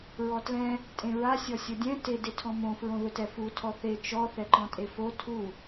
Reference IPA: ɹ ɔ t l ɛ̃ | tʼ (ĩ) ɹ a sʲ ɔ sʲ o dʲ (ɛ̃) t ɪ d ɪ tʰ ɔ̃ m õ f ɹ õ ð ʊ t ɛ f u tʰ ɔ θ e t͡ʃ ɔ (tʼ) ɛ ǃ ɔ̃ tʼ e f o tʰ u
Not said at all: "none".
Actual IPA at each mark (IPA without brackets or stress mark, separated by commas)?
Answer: ẽ, ɛ̃, θ